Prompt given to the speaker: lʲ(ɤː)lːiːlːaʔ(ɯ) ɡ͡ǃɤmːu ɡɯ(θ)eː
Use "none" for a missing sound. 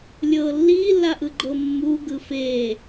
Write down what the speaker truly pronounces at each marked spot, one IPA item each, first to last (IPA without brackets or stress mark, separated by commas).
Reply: ɤː, ɯ, f